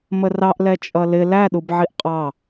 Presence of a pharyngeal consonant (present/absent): present